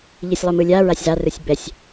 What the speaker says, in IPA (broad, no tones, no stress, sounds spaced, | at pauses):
ʎ i sʲ lˠ o m ɯ lʲ a ɹ a sʲ z a r ɯ sʲ b ɛ sʲ